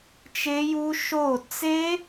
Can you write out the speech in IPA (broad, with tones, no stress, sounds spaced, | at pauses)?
t͡ʃ e˦˥ j u˦˥ ʃ o˥˨ t͡s e˦˥